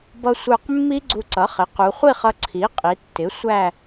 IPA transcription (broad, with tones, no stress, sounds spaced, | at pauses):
b ʌ˧ sʷ ə˞˧˩ q mː i˦˥ ɡ͡ǀ u˧ ǀ ʌ˩˥ χ ɪ˩˥ q u˩˧ χʷ i˥˧ χ ʌ˧ ǀʰ i˩˥ qʼ i˩˧ tː ɪ˩˥ sʷ æ˥˧